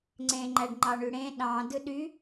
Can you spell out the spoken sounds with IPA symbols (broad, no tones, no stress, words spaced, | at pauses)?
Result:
ŋ͡ǀẽŋ͡ǃæɖ ŋ͡ǃɑɳyɽẽ ɗɑ̃ dɯɗy